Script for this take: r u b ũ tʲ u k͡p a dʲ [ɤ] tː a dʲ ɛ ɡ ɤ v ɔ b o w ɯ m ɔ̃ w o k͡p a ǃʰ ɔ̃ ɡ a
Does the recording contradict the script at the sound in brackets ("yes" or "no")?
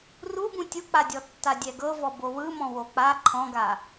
yes